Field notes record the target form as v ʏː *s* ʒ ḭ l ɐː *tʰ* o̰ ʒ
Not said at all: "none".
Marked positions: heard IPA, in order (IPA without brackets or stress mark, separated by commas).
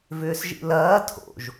s, tʰ